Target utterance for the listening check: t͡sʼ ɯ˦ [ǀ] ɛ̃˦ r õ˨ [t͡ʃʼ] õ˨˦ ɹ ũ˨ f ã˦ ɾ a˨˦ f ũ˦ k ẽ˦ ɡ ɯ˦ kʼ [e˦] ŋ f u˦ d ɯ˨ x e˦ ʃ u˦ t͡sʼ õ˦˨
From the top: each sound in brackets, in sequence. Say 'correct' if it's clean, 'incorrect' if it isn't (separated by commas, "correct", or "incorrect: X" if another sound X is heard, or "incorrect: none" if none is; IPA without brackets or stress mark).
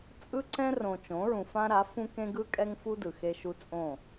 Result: correct, incorrect: t͡ʃ, incorrect: ɛ˦